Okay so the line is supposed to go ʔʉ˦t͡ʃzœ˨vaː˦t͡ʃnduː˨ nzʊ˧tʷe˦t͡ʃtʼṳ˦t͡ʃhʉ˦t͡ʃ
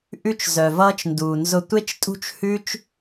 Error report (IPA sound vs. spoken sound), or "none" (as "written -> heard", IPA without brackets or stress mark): aː˦ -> ʌː˦